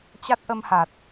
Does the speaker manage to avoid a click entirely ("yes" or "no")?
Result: yes